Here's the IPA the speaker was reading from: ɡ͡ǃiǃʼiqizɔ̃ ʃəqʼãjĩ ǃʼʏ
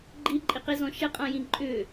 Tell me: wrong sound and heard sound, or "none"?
none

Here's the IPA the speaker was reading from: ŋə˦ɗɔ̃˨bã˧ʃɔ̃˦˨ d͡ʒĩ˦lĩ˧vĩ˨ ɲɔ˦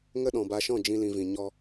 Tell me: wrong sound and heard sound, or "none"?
ã˧ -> a˧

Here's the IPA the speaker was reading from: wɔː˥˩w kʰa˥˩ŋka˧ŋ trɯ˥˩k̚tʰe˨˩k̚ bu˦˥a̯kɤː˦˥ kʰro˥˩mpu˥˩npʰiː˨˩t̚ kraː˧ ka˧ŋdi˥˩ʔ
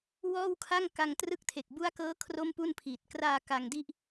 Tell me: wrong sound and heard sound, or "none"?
none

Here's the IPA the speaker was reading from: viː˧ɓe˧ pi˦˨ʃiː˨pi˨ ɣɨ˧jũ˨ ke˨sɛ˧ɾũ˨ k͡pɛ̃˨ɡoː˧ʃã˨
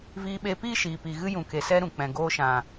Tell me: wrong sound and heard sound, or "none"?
none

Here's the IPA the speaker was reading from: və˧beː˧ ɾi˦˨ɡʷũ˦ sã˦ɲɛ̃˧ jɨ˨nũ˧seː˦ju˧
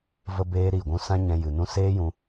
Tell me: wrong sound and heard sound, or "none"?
u˧ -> ũ˧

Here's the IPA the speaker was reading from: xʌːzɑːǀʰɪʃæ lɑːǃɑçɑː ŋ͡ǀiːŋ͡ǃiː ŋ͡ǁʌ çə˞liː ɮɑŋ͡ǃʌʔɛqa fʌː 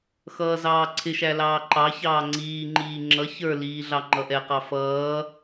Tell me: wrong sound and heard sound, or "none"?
a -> ɑ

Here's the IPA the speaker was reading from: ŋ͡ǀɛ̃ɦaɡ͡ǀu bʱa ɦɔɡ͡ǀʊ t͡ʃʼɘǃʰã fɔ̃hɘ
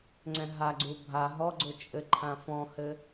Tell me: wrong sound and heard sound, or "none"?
none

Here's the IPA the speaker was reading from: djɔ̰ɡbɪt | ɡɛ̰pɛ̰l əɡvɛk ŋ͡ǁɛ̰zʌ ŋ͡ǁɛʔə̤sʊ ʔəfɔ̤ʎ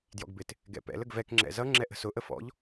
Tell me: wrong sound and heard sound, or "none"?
ɔ̤ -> ɔ̰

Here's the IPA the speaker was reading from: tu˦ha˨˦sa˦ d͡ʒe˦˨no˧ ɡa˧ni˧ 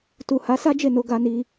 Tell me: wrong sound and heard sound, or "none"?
u˦ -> u˨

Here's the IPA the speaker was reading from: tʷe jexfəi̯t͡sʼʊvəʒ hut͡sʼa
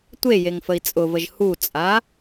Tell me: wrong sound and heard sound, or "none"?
x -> ŋ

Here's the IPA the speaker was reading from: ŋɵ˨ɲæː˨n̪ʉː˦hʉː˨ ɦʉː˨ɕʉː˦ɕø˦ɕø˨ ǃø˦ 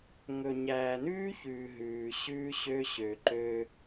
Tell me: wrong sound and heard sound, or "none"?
h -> ç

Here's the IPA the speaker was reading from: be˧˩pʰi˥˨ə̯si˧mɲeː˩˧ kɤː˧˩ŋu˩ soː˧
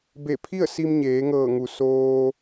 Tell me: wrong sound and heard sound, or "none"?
k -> ŋ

